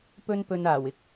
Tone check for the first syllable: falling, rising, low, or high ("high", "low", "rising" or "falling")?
high